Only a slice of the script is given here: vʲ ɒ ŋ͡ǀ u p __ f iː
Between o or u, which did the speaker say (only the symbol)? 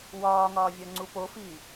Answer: o